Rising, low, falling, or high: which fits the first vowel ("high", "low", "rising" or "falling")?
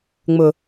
low